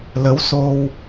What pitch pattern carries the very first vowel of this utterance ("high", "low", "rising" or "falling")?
rising